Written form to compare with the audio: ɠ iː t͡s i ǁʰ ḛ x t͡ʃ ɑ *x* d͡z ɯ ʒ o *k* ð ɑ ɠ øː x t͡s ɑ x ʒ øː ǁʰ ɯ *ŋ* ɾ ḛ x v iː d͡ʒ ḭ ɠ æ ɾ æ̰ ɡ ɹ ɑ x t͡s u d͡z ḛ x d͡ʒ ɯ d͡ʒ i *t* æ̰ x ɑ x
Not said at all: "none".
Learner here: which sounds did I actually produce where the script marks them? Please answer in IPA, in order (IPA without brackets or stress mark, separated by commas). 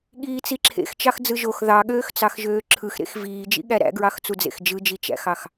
x, x, x, t͡ʃ